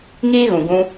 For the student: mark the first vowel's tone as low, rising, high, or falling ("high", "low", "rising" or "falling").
high